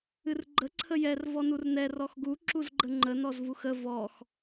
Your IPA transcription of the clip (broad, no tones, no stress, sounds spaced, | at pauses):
ɨ r ɡ͡ǃ ə ǀʰ ə j ɛ r v ɔ n u r n ɛ r ɔ x ɡ u ǁ u z ɡ͡ǃ ə ŋ͡ǃ ə n ɔ z v u x ə v ɔ x